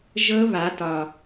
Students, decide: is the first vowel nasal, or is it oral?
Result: oral